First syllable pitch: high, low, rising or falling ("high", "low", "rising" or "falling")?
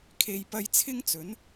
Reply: low